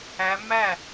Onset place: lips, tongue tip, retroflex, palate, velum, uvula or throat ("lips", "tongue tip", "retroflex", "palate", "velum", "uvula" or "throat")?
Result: lips